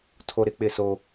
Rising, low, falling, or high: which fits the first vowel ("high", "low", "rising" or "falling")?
high